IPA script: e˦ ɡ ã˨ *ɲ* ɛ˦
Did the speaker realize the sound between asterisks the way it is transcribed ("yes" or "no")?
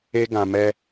no